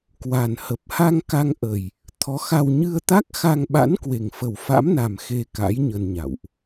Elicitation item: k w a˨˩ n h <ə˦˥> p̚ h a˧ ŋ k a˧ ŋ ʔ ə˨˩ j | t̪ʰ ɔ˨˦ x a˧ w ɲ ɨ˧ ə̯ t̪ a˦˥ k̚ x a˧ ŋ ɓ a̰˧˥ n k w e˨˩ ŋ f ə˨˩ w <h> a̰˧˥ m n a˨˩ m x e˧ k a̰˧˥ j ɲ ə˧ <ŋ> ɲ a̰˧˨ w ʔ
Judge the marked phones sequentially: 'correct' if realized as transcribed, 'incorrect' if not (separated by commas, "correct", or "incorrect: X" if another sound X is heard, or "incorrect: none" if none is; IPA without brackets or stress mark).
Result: incorrect: ə˨˩, incorrect: f, incorrect: n